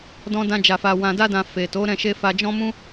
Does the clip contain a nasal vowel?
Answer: yes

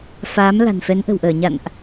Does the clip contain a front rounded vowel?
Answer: no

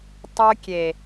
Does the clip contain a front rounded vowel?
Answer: yes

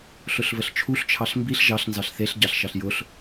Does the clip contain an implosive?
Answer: no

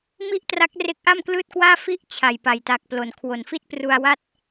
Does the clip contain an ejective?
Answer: no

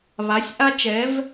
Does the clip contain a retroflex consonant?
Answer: no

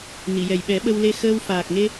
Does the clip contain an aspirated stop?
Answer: no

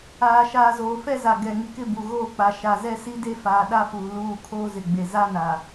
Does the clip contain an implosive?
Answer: yes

